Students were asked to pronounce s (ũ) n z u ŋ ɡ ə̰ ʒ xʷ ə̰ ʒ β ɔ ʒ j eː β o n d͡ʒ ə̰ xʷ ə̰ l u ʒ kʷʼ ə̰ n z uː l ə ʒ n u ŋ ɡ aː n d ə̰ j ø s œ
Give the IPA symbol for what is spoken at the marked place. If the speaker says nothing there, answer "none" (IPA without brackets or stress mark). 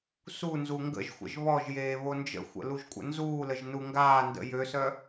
u